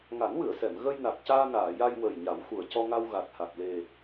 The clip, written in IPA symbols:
ŋ a˨˩˦ n w ɨ˨˩˨ ə̯ s ɛ˨˩˨ m ɣ ə˧ j n a˨˩ k̚ c aː˧ n aː˨˩˨ j a˧ j w ə˨˩ j ɲ a˨˩˦ w x u˨˩ ə̯ c ɔ˧ ŋ a˧ w ɣ a˨˩ t̚ h a˨˩ k̚ l e˨˩

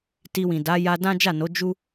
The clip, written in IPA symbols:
t i˧ w ĩ˨ d a˨˦ j a˧ d ã˦ d͡ʒ a˦˨ n o˨˦ d͡ʒ u˦

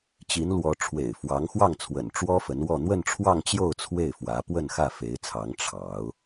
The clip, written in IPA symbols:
t͡ɕ i˧˥ n l w ɔ˧˥ ʈ͡ʂʰ w ḛ˨˩ ɪ̯ f w ɑ˧˥ ŋ x w ɑ˥˩ ŋ t͡sʰ w ə̰˨˩ n ʈ͡ʂ w ɔ˥ f ə˧˥ n w ɔ˥˧ n̪ w ə˥˧ n ʈ͡ʂʰ w ɑ˥˧ ŋ t͡ɕ j o˥˧ ʊ̯ t͡sʰ w e˥˩ ɪ̯ f w ä˧˥ p w ə˥˧ n x ä˥˩ f e˧˥ ɪ̯ t͡sʰ ɑ˧˥ ŋ ʈ͡ʂʰ ɑ˧˥ ʊ̯

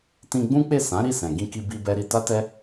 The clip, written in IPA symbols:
t ĩ˧ ɡ͡b ũ˦ k͡p e˦˨ s ã˨˦ ɾ i˦˨ s ɛ̃˨ ɡ ĩ˧ k i˧ b i˧ b ɛ˦ ɾ i˧ t a˦ t ɛ˦

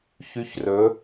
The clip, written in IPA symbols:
ç y˨˥ ç r ɵ˩˧

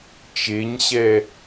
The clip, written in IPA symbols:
t͡ʃ e ɲ ɕ ɛ

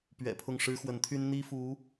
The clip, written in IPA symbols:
p ɥ ɛ̰˨˩ pʰ ʊ˥˩ ŋ ʂ ɻ̩˥ x w ə˧˥ n t̪ʰ y˥ n n̪ i˥ f u˧˥

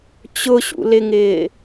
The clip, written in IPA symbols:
t͡ɕ ʊ ɕ ṵ l ɪ ŋ ɪː

